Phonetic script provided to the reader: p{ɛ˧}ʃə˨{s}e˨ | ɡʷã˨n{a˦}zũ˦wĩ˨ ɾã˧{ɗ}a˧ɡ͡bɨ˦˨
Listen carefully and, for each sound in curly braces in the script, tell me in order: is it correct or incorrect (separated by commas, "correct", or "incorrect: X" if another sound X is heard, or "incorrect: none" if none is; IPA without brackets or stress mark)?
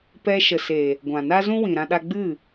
correct, correct, correct, correct